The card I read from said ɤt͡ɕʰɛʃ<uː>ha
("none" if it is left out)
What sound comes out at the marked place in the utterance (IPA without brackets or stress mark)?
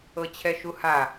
u